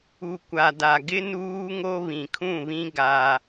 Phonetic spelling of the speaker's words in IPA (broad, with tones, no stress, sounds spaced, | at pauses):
u˨ kʷ a˨ d a˨ ɡ ɪ˦ n uː˦ ŋ o˦ β ĩ˨ kʰ ũ˦˨ β ĩ˦ ɡ a˦